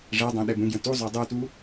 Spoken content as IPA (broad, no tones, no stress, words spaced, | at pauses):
ʐɛdˤɛ̃ ɗɛbũɡjə̃ tuzˤœ dˤutu